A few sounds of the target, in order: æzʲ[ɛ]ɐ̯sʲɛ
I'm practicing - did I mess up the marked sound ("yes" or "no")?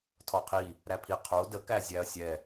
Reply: yes